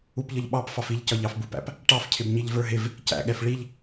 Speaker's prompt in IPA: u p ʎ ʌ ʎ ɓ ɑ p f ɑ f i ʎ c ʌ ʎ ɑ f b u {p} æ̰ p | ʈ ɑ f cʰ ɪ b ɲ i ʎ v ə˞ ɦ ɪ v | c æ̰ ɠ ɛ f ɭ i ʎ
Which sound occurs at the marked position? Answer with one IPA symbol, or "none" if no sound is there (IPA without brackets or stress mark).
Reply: p